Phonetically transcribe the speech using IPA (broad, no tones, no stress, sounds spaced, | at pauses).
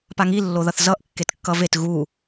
p a ŋ i lː o ð ʌ θ z ʌ ʔ kː e t kː ʌ v e t ɣ u